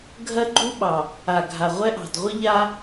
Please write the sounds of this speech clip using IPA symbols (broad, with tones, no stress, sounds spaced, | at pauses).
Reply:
ɡʱ ɜ˦ ɡ͡ǃ u˦ ɓ ɑ˨ | a˨ ɡʱ a˨ ʁʷ ɛ˦ ʔ ɑ̤˨ d ʁʷ ə˦ ʎ a˦